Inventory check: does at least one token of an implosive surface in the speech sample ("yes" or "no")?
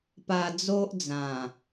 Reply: no